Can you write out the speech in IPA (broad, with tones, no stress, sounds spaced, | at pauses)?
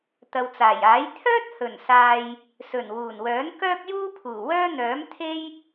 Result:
t̪ ɐ˨ w t͡s aː˨˩ j aː˨˥ j t̪ʰ œː˥ t̚ h ɵ˨˩ n s aː˨ j | s ɵ˨˩ n w uː˨˩ n w œː˨˥ n k œː˥ k̚ j uː˥ pʰ uː˨˩ w œː˥ n̪ œː˨˥ m t̪ʰ e˥ j